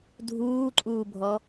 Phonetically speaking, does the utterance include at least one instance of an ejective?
yes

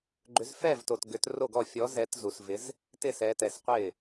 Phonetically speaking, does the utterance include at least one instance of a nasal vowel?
no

